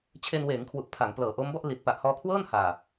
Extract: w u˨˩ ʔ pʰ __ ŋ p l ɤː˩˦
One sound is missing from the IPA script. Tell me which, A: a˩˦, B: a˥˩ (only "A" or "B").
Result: A